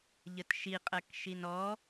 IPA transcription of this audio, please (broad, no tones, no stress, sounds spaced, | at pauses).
ʎ ə t ʃ i qʼ ɜ k ʃ i n ɔ